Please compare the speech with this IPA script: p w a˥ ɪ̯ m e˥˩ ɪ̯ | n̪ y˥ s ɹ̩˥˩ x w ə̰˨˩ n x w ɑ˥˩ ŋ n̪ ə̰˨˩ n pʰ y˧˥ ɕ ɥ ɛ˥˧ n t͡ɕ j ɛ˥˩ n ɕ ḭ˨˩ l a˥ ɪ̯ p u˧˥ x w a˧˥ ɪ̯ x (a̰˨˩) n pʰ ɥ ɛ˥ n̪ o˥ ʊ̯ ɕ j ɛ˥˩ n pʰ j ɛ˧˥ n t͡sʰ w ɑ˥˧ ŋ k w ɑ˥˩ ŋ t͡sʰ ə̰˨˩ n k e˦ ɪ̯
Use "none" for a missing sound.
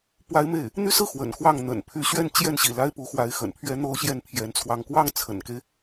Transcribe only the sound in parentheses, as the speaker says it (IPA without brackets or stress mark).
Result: ə̰˨˩